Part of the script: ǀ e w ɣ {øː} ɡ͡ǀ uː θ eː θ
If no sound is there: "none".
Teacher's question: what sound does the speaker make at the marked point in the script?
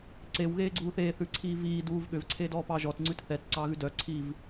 eː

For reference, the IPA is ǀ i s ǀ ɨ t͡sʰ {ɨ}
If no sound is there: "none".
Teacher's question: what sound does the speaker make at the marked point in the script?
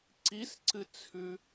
ʉ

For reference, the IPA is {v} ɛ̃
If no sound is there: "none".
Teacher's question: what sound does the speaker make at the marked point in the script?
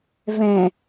v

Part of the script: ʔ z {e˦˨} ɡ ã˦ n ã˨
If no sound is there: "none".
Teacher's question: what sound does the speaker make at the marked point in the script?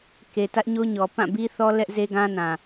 e˦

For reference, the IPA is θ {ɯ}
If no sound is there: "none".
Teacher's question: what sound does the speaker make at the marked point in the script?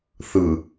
ɯ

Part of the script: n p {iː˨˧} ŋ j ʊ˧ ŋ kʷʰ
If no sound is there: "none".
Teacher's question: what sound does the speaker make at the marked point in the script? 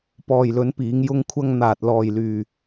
iː˨˧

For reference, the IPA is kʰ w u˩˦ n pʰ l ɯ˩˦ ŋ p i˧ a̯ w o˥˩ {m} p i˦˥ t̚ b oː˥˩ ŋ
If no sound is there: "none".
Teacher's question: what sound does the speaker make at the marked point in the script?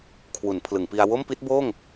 m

